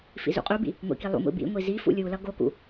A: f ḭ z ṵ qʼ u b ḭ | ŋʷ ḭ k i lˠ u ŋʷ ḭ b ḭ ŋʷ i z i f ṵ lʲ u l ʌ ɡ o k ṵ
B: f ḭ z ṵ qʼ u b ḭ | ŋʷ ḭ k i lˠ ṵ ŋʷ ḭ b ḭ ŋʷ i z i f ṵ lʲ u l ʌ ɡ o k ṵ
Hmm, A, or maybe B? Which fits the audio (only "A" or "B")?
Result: B